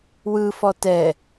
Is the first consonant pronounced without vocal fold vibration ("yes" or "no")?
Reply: no